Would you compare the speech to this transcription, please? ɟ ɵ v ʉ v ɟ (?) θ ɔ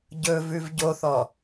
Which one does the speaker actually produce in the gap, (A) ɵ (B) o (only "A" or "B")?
B